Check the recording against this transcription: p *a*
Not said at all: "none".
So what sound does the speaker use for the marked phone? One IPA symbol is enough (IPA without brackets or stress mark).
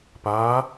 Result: aː